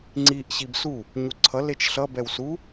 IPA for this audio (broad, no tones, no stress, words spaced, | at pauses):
ŋ͡ǀiʔ ɕibsu | ɲuǀʰʌ let͡ʃɬʌbɛw su